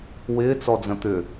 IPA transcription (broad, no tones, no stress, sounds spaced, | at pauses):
w ɪː t͡s ɔ d͡z ə̃ t̪ ʏ